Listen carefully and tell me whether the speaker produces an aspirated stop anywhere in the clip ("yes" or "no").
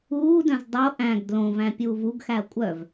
no